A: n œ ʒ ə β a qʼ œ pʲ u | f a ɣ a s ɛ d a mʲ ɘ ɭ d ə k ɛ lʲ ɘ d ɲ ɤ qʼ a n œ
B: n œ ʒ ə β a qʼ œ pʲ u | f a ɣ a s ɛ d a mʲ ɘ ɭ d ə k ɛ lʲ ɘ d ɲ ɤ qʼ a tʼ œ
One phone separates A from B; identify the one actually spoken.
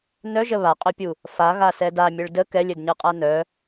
A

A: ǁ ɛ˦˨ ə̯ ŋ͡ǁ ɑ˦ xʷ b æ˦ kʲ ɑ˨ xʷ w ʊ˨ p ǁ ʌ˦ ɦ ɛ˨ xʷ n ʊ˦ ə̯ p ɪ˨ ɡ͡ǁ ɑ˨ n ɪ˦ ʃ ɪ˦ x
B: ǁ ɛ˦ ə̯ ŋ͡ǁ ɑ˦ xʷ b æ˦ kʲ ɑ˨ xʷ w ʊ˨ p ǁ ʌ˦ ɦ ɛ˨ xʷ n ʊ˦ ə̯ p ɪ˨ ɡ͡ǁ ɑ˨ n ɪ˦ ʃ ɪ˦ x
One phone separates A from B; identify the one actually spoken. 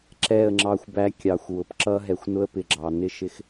A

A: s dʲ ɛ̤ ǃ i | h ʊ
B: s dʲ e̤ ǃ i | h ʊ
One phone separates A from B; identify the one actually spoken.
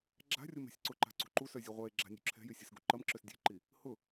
B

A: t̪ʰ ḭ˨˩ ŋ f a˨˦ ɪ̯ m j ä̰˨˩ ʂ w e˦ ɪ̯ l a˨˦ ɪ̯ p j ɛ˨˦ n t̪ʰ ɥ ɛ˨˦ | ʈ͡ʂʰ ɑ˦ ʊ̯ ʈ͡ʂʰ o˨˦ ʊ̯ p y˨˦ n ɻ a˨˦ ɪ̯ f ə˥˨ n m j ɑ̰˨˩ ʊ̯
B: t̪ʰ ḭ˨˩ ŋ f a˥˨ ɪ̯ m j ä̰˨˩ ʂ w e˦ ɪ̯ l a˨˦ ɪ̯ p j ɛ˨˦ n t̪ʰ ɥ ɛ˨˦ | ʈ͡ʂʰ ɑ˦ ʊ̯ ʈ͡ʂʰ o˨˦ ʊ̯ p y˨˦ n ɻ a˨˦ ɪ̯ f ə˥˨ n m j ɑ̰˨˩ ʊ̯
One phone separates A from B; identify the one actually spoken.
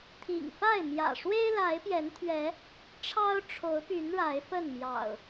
B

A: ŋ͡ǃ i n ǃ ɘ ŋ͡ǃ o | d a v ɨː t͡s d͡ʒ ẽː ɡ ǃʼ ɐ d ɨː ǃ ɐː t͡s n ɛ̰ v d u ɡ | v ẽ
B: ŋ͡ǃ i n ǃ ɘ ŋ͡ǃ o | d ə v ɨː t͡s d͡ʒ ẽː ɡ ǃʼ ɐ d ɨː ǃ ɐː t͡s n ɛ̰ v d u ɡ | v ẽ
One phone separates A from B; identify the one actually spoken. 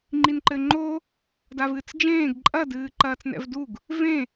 A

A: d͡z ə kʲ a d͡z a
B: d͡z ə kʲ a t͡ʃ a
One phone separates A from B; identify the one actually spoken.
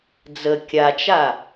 B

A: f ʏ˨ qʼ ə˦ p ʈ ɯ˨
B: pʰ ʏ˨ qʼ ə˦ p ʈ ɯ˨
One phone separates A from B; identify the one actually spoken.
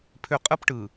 B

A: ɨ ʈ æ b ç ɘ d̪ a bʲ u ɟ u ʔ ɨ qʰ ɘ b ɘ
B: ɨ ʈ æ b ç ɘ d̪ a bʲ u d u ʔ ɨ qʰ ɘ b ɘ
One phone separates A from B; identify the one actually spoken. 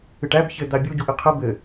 A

